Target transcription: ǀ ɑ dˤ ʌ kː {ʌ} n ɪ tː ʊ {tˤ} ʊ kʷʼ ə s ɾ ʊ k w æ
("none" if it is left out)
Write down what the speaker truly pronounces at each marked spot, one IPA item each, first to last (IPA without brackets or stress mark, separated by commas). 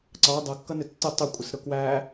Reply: ʌ, tˤ